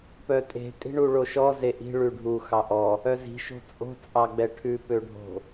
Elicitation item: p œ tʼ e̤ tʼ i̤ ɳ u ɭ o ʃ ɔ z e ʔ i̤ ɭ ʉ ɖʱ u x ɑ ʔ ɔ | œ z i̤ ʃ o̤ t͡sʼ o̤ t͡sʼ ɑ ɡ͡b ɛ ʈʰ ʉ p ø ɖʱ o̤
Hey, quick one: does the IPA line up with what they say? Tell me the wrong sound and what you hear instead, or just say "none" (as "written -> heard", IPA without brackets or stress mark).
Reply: none